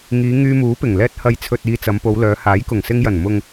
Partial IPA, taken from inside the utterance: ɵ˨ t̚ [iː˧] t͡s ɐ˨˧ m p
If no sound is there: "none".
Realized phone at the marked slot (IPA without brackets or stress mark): iː˨